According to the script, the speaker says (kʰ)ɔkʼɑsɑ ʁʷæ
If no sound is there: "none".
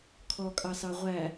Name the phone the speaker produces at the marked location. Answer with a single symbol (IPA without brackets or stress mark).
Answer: kʰ